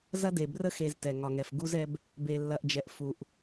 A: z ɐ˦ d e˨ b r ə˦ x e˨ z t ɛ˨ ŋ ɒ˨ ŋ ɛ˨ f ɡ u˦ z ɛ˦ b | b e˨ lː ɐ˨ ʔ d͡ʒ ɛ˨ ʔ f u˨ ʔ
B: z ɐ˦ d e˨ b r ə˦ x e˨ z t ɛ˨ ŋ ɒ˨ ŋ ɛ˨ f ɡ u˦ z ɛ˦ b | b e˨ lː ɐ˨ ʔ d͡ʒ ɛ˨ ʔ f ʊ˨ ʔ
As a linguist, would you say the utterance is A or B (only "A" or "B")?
A